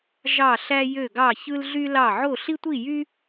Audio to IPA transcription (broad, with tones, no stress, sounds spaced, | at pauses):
ʒ ɑ˥˧ ɬ æ˥ j ø˥˧ ɡ ɑ˥˧ ç ɯ˥ l ɮ y˥ l ɑ˥˧ ʕ o˥˧ ɬ i˥ tʷ i˥˧ j y˥